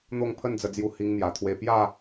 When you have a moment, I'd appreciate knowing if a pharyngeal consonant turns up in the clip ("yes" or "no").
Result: no